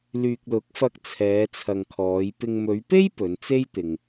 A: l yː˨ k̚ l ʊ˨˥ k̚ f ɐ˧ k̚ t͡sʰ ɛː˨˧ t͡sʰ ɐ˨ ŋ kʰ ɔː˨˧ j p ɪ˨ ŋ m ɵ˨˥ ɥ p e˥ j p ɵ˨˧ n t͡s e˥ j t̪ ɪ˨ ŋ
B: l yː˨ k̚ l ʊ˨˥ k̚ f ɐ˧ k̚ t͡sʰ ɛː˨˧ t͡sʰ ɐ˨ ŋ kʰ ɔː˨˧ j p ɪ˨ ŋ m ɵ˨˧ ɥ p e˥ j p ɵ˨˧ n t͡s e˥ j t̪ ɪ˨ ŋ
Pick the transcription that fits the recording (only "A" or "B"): B